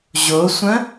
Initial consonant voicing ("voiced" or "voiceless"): voiced